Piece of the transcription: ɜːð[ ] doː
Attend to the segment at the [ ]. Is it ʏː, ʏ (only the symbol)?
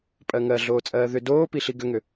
ʏ